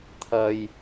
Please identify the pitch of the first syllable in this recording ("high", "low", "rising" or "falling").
low